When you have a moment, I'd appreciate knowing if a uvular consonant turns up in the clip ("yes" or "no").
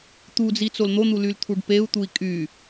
no